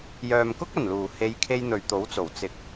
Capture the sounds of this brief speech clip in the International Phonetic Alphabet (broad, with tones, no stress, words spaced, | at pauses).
jœː˨mkʊ˥k̚ɐ˨˩nluː˨˩ he˨˧jkʰe˧j n̪ɵ˨ɥt̪o˨˥wt͡so˨˩w t͡sɪ˨k̚